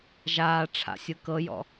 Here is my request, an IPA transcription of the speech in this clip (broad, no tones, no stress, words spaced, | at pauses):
ʒaː ʈ͡ʂʰa̰sʲɯ kɤjɔ̰